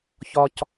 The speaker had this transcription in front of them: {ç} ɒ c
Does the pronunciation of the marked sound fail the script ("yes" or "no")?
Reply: no